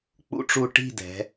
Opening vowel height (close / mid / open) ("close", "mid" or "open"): close